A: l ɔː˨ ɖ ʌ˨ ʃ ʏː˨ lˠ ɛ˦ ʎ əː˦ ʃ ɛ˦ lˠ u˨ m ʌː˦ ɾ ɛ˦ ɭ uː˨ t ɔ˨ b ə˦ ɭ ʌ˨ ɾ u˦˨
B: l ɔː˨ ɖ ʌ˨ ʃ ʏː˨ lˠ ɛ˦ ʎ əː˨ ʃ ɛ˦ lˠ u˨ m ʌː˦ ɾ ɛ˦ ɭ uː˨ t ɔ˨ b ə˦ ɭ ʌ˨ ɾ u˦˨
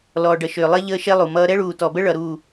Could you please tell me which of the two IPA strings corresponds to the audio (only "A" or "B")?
A